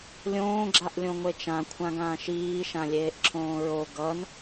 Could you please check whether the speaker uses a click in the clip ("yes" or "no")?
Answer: yes